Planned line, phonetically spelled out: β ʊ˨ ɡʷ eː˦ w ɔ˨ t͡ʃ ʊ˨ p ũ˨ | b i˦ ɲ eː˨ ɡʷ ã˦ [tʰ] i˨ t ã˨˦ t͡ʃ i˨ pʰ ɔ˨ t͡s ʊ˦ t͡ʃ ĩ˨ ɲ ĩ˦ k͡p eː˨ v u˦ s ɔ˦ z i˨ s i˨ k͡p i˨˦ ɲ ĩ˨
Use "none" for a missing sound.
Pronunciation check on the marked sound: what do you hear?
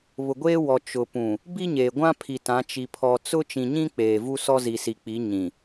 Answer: pʰ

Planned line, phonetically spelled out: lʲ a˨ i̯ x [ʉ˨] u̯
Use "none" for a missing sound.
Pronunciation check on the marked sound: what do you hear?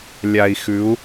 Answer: ʉ˨˦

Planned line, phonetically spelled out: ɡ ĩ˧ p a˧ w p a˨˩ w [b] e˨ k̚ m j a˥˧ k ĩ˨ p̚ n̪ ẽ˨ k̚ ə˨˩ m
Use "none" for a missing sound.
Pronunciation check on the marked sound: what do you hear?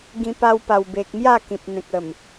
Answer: b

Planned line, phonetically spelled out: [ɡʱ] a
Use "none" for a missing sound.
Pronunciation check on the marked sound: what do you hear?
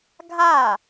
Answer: ɡʱ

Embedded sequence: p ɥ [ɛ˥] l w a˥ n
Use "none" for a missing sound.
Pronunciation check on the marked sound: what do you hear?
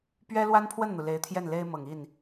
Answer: ɛ˥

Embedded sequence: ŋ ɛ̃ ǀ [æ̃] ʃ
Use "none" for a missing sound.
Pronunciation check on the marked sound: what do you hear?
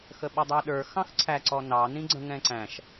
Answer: æ̃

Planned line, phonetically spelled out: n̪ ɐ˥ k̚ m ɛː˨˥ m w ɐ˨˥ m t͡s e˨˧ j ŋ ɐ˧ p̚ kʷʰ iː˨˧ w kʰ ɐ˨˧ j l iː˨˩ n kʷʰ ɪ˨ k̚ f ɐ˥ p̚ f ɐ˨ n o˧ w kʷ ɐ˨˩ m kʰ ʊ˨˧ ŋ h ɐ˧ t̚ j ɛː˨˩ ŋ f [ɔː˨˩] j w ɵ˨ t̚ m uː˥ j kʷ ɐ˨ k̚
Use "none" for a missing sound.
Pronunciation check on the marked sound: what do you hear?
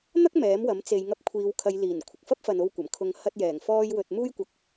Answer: ɔː˧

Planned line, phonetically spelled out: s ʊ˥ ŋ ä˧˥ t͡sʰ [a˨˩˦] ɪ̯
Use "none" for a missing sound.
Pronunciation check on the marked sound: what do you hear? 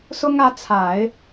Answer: a˨˩˦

